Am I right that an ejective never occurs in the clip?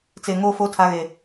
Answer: yes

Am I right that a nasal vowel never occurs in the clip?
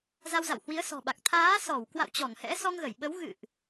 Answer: yes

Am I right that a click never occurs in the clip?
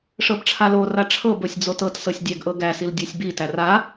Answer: yes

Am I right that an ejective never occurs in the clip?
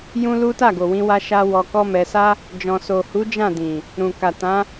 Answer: yes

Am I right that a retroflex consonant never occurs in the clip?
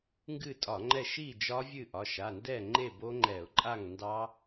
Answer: yes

